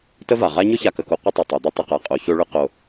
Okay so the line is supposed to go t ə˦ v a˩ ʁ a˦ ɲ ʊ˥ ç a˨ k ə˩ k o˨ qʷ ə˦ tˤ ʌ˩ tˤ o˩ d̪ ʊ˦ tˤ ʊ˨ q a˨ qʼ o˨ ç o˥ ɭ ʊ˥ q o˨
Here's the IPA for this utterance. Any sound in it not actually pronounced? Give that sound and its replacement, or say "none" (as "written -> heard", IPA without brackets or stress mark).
none